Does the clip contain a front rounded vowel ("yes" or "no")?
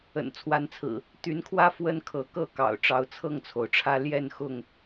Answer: yes